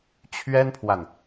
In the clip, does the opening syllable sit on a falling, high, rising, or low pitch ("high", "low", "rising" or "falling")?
high